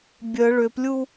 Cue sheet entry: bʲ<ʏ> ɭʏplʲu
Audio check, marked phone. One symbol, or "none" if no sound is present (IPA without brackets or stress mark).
ə